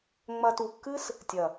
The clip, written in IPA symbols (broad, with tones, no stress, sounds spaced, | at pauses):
ŋ͡m ɐ˧ t u˨ kː ɨ˦ s | tʲ ɐ˨